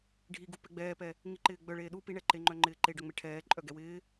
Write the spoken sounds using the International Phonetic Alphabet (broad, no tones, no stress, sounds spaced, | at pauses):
ɖʱ i ɡ u p ɛ ɡ͡b ɛː p ɛ | ŋ i ǃ ɪː ɡ͡b œ ɭ eː ɗ u p i ɳ ɛ ǃ e ŋ͡ǃ œ ŋ͡ǃ ɪː ǃ e ɖ œ ŋ͡m e ʈʰ ɛː ǃʼ œ ɡ ɛ w ɪː